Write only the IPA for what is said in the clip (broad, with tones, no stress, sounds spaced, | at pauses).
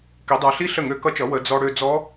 k i˩˧ dˤ ə˞˩˧ ɬ i˦˥ ɬ ə˥˩ ŋ ø˦˥ k ʌ˦˥ t͡ʃ ʌ˩˥ w ə˩˧ d͡z ɔ˧ ɽ ø˧ d͡z ɔ˦˥